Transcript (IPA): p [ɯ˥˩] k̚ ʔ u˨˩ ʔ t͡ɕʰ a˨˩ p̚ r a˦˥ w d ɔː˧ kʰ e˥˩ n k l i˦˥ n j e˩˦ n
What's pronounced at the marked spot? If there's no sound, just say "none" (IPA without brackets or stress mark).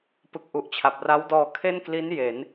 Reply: ɯ˨˩